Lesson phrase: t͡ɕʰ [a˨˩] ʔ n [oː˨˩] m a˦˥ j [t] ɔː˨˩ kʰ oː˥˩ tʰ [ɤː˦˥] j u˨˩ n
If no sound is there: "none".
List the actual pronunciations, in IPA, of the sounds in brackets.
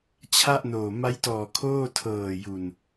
a˥˩, oː˨˩, t, ɤː˨˩

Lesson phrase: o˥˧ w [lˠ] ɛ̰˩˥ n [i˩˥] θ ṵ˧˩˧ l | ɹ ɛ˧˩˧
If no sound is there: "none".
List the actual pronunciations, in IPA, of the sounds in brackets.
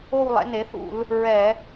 lˠ, e˩˥

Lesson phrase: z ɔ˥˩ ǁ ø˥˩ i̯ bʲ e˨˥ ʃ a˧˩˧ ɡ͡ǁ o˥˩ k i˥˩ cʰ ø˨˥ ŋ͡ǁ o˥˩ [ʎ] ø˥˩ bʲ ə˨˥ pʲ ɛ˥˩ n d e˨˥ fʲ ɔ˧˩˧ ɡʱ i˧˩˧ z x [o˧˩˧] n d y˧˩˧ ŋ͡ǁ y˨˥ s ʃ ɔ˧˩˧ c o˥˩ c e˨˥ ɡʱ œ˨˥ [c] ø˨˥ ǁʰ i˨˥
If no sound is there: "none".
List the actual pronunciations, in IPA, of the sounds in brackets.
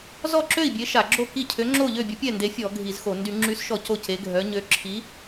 ʎ, o˧˩˧, ɲ

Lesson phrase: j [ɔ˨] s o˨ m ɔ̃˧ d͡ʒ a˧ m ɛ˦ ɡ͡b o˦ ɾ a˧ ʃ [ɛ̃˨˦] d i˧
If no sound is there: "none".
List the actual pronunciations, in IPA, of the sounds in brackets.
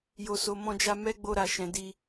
o˨, ɛ̃˨

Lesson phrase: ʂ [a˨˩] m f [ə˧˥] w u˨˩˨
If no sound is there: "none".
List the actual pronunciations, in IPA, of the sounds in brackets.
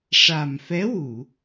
a˨˩, ɛ˧˥

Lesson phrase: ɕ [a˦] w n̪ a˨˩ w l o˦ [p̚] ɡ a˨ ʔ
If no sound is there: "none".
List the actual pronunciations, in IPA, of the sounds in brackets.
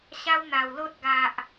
a˦, t̚

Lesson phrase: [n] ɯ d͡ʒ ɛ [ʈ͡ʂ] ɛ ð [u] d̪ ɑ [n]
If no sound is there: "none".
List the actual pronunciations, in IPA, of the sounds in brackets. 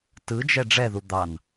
t, ɖ͡ʐ, u, n

